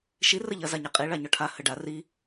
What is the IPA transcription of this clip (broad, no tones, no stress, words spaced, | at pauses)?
ʃi rəʎɐ zaɲaqʼi ɭaɲɔʈʰa həɖa ri